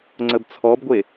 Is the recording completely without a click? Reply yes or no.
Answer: no